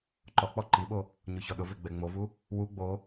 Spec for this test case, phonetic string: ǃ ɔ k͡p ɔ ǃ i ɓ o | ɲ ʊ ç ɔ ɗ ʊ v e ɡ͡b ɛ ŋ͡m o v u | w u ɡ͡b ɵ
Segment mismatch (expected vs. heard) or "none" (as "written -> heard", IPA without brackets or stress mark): ɵ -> o